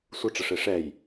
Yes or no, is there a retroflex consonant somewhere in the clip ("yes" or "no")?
yes